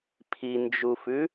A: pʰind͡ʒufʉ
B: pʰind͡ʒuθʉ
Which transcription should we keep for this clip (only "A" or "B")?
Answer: A